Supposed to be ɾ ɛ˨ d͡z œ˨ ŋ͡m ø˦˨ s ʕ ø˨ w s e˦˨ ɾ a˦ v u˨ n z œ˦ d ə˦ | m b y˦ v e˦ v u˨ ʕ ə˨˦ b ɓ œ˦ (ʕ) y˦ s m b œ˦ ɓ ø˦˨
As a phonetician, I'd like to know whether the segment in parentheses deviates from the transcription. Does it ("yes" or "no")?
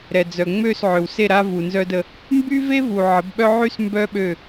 no